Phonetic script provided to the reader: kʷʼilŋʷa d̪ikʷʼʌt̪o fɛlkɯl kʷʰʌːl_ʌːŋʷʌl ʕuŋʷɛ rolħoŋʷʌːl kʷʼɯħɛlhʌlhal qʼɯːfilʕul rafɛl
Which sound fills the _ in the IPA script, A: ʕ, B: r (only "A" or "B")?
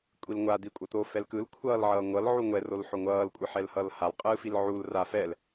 A